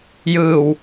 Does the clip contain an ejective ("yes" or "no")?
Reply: no